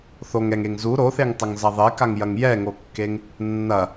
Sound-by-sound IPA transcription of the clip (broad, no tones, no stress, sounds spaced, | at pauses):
θ o ŋ ɛ ŋ e ŋ z u ɾ o θ e ŋ tˤ ɐ ŋ z ɐ ðˤ e k a ŋ j ɐ ŋ j ɛ ŋ o kː e ŋ | nː ɐ